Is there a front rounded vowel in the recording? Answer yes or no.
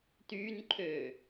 yes